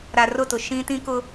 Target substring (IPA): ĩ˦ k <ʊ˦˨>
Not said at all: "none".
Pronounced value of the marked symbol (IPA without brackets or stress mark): ʊ˦